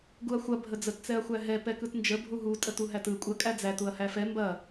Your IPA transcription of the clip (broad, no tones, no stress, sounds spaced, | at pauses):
ɡ u ɐ̯ xʷ ɐ bʱ ə d͡z ə t t͡s ɛ ɐ̯ xʷ æ ɦ ɛ p ɛ k ɯ t n d͡ʒ ə bʱ u ɦ u tʼ ə t u ɦ æ t ɯ kʷʼ ɐ kʼ æ d͡z æ t u ɐ̯ h æ f ɛ m b ɐ